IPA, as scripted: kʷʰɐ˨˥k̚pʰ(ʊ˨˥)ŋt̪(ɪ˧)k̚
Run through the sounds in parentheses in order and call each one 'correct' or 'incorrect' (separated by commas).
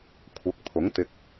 correct, correct